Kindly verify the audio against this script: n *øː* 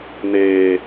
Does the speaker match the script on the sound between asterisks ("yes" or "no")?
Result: no